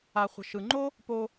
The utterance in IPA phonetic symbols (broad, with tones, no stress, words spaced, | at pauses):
a˨χʷə̤˨ʃɯ˨ŋ͡ǃo˦ | po˧